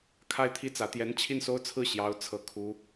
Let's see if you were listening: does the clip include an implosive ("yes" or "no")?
no